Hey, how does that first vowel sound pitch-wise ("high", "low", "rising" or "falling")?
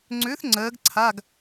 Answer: rising